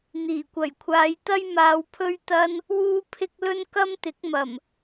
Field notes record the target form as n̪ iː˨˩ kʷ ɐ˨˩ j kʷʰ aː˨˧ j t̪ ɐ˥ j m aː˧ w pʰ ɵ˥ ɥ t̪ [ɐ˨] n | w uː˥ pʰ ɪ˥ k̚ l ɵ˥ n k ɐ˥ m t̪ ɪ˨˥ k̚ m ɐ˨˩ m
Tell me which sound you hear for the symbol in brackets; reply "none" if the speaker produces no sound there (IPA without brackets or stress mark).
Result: ɐ˥